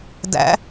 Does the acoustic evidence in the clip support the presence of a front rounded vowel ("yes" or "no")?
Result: no